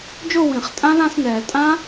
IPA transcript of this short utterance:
d͡ʒ o˥˧ w ĩ˨˩˦ χ tʼ ã˦˥ l ã˥˧ s n ɛː˨˩˦ l tʼ ã˦˥

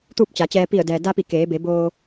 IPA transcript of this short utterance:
t̪ uː˥˨ p̚ t͡ɕ a˩˧ t͡ɕ ɛː˧ p i˧˩ ə̯ d ɛː˩ d a˧ p i˧˩ k eː˩˧ b e˩˧ b oː˧

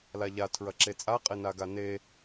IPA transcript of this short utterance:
l a ʎ a tʰ ɹ ɐ ǁ e t͡sʼ a qʼ e n a ɡ a n e

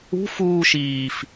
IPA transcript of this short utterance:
ṳ f uː ʃ iː f

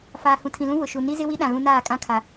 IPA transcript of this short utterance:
f aː˨ h ũ˨ tʰ ĩ˨ l ũ˦ w ʊ˨ ʃ u˨ n i˦ z ɪ˦ w i˦ ɗ ã˨ ɣ ũ˦ n aː˦˨ kʼ ã˦ kʰ a˨

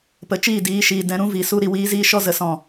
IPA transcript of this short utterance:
p ə˨ t͡ʃ iː˦˨ d iː˨˦ ʃ iː˨ d ɛ̃˧ ɾ ũ˦ v i˨ s u˧ ɾ i˧ w iː˦ z iː˦ ʃ ɔ˧ z ə˨ s ɔ̃˦˨

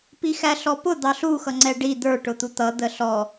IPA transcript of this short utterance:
p i x æ ɬ ɔ p ʊ d̪ ɑ ɬ u x ʌ ŋ͡ǀ ɛ ɖ i d̪ ə˞ ʈ ʊ t̪ u t̪ ʌ d̪ ə ɬ ɔ

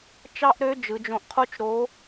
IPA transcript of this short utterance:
t͡ʃ ɑ˥ ʔ ɾ ø˧˥ d͡ʒ ɯ˩˧ d͡ʒ õ˧ ʔ qʰ o˥ t͡ʃ ɾ o˧˥

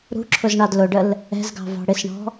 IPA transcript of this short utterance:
ɾ ṳ ǁʰ ʊ z ɳ ɑ d l ʊ ɖ ə l | ɛ̤ z ɡ ɑ̤ v ɑ̤ ɽ ɪ s ɳ ɔ̤

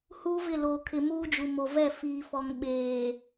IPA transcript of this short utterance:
h uː˦ v ɪ˦˨ l oː˨ kʰ ɪ˨ m uː˦ d͡ʒ u˨ m o˨ v ɛ˦˨ f iː˨ f ɔ˨ ŋ ɓ eː˨

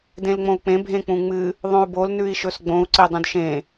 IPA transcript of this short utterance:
d ẽ l ŋ͡m õ u̯ k͡p ẽ bʱ ẽ k͡p ũ ŋ͡m ɨ | ðˤ õ u̯ b o l n ʉ i̯ ʃ ɵ s ɡ͡b õ u̯ ǀ e dˤ ũ d ʃ ẽ

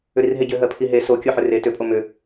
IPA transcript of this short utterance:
ʏ ɾ i r ɦ e ɟ ʏ ɦ ɜ pʰ i ɦ e s o kʲ o ħ ʏ r e t ʏ pʼ o m ʏ

